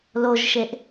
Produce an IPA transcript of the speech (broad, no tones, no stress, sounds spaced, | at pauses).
l o ʒ ʃ e ʔ